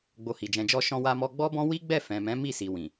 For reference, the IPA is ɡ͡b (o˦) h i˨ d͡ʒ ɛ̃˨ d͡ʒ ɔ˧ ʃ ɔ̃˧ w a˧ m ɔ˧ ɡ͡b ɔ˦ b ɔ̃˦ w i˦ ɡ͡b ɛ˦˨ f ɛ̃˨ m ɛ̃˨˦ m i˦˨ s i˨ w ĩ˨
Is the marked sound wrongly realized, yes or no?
yes